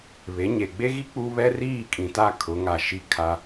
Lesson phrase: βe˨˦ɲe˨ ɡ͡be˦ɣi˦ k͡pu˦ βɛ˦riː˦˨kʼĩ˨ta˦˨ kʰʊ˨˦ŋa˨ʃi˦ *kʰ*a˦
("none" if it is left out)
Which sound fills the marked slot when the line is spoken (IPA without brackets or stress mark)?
kʰ